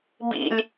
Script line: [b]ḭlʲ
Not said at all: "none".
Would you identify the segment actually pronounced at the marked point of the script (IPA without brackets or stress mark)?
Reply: b